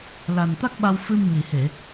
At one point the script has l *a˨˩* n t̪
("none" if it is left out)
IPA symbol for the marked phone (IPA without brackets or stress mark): a˨˩